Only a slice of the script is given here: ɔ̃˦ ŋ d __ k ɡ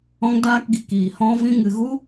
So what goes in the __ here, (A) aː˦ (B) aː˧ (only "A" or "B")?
A